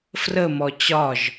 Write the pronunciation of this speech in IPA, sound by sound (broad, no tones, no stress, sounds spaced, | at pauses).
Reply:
f r ə m ɔ t͡ɕ ɒ ʒ